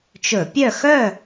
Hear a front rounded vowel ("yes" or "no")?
yes